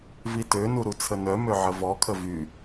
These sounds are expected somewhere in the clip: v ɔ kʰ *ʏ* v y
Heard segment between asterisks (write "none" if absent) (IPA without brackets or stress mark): ə